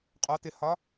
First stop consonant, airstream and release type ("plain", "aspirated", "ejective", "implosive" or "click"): ejective